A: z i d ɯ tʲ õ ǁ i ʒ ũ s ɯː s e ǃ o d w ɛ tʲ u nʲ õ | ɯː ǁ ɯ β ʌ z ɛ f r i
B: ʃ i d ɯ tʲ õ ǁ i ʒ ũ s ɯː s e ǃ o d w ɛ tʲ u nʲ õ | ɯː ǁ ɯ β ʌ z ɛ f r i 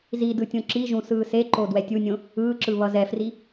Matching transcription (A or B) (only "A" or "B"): A